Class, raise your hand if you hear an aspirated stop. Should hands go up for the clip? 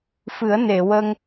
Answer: no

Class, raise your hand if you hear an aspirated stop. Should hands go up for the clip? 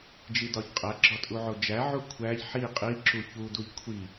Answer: yes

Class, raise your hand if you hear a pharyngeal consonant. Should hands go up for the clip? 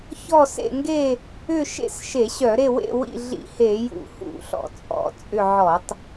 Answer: yes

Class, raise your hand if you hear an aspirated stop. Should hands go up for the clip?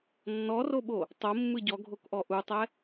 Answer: no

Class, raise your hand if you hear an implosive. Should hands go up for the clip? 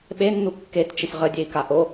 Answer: yes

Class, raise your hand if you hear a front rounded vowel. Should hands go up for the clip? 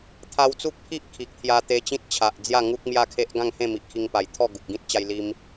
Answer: no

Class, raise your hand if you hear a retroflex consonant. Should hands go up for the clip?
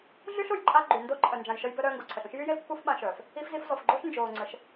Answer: no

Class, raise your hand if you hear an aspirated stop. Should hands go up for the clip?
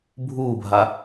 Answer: no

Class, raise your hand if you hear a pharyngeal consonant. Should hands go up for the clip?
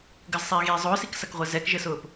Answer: no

